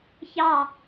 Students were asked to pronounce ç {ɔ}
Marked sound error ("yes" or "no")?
yes